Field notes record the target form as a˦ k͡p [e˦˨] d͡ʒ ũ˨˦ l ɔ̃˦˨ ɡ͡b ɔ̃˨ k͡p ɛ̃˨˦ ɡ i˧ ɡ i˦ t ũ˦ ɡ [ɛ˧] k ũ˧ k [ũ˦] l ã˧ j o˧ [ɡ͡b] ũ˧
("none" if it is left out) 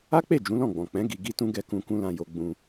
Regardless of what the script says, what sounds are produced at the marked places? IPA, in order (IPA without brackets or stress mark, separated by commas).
e˦˨, ɛ˦˨, ũ˦, ɡ͡b